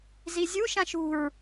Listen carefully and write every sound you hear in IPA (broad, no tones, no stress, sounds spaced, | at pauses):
z i zʲ u ʃ ã ʃ ṳ ɹ